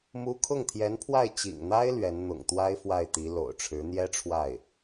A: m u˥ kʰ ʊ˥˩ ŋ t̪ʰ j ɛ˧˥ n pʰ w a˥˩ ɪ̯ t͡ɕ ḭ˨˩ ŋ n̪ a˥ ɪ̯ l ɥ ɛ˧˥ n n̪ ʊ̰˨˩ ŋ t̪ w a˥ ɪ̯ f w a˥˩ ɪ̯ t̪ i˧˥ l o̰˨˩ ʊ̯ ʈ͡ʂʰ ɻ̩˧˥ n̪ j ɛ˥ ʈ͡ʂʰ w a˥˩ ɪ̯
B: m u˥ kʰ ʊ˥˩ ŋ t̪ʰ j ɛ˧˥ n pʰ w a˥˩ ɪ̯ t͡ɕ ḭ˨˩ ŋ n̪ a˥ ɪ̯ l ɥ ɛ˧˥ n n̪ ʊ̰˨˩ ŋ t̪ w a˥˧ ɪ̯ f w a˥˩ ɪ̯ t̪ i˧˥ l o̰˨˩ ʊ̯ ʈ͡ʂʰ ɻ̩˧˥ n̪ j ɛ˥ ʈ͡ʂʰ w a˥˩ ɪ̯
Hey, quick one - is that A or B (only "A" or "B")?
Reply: A